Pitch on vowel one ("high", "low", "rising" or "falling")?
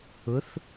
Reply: rising